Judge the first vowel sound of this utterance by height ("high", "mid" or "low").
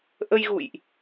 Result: mid